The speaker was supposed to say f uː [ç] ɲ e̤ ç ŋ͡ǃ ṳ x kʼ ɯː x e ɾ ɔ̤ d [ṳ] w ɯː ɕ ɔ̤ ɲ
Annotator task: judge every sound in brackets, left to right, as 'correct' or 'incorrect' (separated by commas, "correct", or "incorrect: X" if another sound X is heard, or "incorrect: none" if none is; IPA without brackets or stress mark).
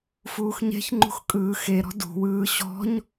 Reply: incorrect: x, correct